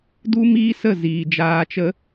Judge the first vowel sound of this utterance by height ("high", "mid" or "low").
high